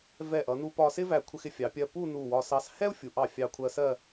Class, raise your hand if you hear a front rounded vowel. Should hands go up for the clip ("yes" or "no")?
no